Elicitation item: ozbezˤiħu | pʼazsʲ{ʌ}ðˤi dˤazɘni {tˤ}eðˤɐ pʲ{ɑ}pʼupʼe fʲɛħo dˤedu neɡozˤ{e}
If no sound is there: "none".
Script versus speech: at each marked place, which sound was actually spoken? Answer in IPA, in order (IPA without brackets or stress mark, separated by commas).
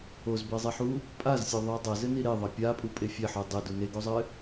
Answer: ɔ, ɾ, a, ɘ